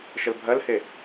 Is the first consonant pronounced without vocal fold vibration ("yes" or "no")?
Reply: yes